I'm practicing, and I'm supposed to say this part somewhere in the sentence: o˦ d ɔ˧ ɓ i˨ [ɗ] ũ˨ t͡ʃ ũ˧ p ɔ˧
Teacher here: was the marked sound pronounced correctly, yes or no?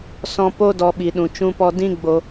yes